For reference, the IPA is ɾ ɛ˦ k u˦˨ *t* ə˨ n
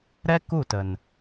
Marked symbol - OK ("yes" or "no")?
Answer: yes